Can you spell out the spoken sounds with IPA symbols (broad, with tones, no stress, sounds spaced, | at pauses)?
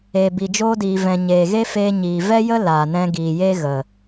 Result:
e˨ b i˨ d͡ʒ oː˧ d iː˨ v ɛ̃˨ ɲ eː˨ ɣ e˦ f eː˧ ɲ iː˨ v ɛ˦ j ə˦ l aː˨ n ɛ̃˧ ɡ iː˨ j e˦ ɣ ə˨